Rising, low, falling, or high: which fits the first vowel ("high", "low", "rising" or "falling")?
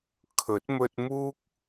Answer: rising